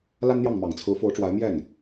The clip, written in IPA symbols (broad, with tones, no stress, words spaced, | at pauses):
la˥nn̪jɑ˥˩ŋmɑ˨˩ŋt͡sʰɹ̩˧˥ fo˧˥ʊ̯ʈ͡ʂwa˧˥ɪ̯ mjɛ˥˩n